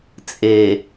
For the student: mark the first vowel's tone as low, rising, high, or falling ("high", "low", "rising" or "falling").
low